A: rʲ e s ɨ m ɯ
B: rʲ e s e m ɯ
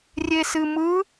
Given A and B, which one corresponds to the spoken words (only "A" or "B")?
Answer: A